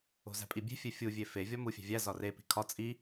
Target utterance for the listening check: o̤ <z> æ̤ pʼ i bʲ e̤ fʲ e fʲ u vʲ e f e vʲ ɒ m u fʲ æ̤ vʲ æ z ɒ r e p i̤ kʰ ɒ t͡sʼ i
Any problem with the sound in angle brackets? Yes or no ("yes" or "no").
no